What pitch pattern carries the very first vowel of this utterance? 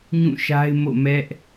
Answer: falling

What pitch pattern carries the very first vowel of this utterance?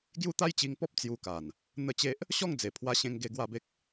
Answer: high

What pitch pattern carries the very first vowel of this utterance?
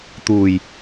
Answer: low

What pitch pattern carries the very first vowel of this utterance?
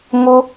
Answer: high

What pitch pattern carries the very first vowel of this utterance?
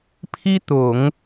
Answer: high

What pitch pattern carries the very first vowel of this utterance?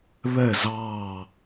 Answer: falling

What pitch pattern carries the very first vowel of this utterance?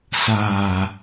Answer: low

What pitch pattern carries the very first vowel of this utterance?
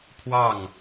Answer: falling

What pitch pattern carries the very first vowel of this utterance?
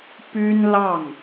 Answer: high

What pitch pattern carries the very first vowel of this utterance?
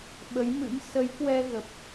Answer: rising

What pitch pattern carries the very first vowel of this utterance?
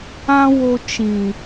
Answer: high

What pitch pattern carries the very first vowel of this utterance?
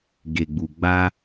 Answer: low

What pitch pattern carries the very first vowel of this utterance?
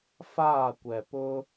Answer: falling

